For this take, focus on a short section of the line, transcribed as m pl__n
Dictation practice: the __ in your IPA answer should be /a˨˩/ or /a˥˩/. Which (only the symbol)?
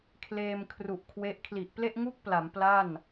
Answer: a˥˩